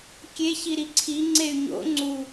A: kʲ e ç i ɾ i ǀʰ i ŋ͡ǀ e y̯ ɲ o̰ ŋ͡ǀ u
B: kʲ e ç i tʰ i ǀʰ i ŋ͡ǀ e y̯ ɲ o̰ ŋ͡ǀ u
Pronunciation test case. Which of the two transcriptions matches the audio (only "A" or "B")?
A